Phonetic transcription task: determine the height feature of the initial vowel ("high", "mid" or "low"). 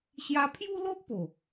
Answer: low